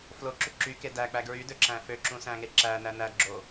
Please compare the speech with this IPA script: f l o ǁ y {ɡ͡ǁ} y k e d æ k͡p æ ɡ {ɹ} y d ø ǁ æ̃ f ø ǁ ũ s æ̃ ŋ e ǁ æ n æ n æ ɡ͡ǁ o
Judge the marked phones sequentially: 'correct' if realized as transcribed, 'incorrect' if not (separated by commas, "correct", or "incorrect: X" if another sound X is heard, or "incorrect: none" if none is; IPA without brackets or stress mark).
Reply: incorrect: ǁ, correct